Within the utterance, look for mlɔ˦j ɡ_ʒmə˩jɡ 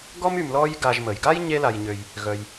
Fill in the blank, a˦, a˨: a˨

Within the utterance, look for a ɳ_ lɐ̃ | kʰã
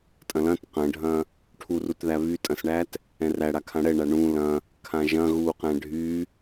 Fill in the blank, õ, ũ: ũ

